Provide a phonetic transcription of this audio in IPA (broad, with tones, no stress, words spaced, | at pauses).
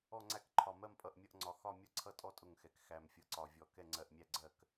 ɔ˥˨ŋ͡ǀæ˥˨kǃʰɒ˧˩ mɜ˥˨mpʼʌ˧˩ʔmʲʌ˥˨ʔŋ͡ǀɒ˧˩ xɒ˥˨ mʲʌ˥˨ǀʰʌ˥˨tʼɔ˥˨ tʼʊ˥˨ŋxɛ˧˩k xæ˧˩mfʲʌ˧˩ǀɒ˧˩vʲɔ˧˩ kɛ˥˨ŋ͡ǀɜ˧˩ʔmʲæ˥˨ɡ͡ǀɜ˥˨k